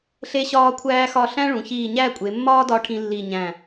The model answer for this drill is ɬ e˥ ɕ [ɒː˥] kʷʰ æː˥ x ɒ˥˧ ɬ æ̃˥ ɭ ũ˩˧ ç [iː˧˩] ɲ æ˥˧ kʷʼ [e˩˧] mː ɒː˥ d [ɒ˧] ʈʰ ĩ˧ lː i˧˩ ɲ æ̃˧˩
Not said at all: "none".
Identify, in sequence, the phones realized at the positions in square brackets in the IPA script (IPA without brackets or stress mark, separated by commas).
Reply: ɒː˥, iː˧˩, e˩˧, ɒ˧